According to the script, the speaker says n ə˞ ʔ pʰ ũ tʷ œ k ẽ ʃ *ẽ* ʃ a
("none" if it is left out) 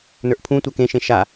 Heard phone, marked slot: ẽ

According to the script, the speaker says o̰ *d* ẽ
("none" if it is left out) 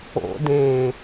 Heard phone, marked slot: d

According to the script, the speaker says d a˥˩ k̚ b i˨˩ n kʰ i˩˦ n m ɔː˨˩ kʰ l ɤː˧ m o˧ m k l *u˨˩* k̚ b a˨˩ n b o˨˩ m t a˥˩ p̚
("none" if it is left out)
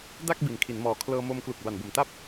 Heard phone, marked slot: u˨˩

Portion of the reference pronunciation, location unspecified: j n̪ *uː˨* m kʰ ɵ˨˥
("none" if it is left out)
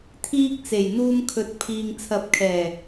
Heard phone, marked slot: uː˧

